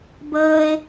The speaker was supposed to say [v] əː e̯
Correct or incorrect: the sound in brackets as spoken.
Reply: incorrect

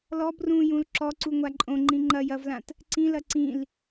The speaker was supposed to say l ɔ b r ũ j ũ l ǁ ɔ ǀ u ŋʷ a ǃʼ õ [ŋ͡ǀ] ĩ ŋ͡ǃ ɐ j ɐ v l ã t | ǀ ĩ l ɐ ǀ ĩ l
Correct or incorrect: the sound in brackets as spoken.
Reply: incorrect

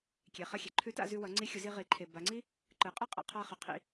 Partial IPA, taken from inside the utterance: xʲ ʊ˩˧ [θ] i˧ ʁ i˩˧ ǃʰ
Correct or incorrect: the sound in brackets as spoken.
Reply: incorrect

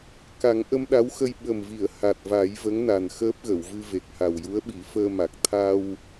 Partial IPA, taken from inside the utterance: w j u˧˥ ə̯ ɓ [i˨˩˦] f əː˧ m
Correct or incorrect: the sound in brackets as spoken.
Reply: correct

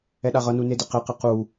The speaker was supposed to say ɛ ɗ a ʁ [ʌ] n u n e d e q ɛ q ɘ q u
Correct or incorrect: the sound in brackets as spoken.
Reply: correct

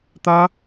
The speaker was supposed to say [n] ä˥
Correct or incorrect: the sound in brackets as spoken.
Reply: incorrect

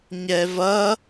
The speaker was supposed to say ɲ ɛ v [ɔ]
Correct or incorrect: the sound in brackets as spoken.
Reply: incorrect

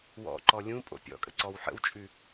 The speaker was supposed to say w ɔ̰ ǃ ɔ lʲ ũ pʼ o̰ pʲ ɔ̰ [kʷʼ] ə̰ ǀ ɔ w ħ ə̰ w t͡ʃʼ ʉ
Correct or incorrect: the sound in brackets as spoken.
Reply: incorrect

